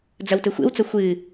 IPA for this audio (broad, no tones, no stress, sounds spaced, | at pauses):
d͡z ɐ w t ɘ xʷ ḛ w t͡s ɐ xʷ ɨ